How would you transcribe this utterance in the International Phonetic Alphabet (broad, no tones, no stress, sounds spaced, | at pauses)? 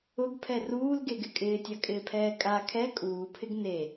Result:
ʊ ɡ pʰ ɛ r uː l ɡ e ɡ ɪ kʼ ɪː tʲ a kʼ ɪː pʰ ɛː kʼ a kʰ ɛ kʼ uː pʰ ɪ ɡ n e